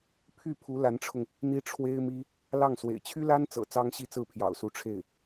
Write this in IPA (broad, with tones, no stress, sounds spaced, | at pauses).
pʰ y˥˩ pʰ u˧˥ l a˧˥ n ʈ͡ʂʰ ʊ˧ ŋ | n̪ i˥ ʈ͡ʂʰ w e˥ ɪ̯ m i˥ | l ɑ˥˩ ŋ s w ḛ˨˩ ɪ̯ t͡ɕʰ y˥ l a˥ n t͡s ɤ̰˨˩ t͡s ɑ˥ ŋ ɕ i˥˧ t͡s ɹ̩˥˩ pʰ j ɑ̰˨˩ ʊ̯ s u˧˥ ʈ͡ʂʰ e˥˩ ɪ̯